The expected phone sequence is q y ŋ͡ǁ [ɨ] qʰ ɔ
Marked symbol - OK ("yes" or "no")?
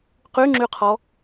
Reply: no